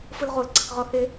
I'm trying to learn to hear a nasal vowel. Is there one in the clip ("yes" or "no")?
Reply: no